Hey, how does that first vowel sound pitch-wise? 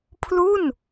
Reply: falling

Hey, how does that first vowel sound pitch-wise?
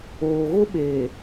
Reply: low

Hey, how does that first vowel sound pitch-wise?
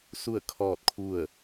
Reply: falling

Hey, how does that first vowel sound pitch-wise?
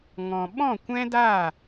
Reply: low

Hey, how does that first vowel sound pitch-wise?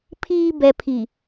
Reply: low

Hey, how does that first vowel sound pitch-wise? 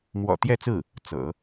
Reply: low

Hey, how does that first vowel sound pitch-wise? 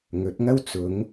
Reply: rising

